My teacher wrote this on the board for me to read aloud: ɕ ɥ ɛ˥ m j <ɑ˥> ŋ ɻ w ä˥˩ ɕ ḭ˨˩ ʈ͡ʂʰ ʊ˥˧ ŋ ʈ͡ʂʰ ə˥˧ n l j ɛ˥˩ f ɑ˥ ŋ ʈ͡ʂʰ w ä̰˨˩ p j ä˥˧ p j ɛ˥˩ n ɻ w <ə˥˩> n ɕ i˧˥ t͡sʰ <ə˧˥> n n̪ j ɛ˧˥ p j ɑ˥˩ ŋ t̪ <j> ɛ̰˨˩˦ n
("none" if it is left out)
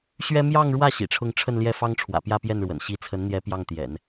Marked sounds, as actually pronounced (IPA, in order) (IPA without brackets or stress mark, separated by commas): ɑ˥˧, ə̰˨˩, ə˧˥, j